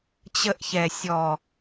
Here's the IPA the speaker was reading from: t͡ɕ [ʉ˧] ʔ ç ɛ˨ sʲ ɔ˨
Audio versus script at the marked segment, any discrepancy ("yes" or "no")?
yes